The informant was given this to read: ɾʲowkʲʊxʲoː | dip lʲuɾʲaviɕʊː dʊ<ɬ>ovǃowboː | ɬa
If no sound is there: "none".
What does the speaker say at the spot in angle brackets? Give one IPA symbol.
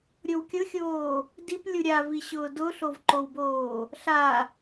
ɬ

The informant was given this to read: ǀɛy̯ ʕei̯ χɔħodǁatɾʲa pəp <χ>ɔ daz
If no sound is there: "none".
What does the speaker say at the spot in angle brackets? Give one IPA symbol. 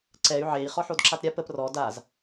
r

